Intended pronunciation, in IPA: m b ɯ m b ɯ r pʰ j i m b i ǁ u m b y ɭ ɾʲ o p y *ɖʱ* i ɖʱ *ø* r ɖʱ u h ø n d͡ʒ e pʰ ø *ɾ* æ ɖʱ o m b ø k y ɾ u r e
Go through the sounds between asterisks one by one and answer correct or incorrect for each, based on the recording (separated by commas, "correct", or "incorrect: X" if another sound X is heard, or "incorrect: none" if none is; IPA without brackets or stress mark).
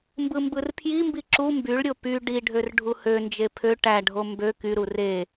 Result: incorrect: ɖ, correct, incorrect: ʈ